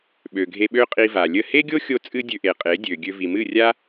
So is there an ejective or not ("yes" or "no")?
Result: yes